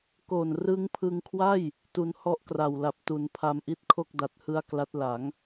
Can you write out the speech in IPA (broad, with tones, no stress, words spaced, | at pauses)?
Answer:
ko˨˩nrɯ˦˥ŋpʰɯ˧ŋkʰwa˥˩j | tu˧nhɔ˦˥ʔkra˨˩wla˨˩p̚ tu˩˦n pʰa˧mʔi˥˩t̚kʰo˥˩k̚ da˨˩t̚hɯ˧a̯ kla˦˥t̚la˩˦ŋ